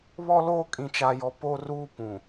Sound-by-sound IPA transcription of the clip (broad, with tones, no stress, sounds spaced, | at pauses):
β ɔ˦ l oː˦ kʼ ĩ˨ t͡ʃ a˨ j ɔ˨ p o˦ r uː˦ p ũ˨